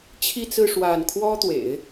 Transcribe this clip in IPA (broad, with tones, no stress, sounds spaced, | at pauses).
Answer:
t͡ɕʰ i˥˧ t͡s ɹ̩˥˧ ʂ w a˥˩ n kʰ w ɔ˥ t̪ w ḛ˨˩˦ ɪ̯